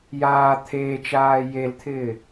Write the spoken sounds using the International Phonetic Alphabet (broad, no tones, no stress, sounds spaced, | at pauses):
j aː t̪ʰ eː t͡ʃ aː j e l t̪ʰ ɪː